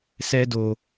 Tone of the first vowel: high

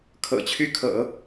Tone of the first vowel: low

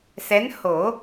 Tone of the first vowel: rising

